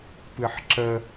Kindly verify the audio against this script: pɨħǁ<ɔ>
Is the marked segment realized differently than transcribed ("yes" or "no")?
yes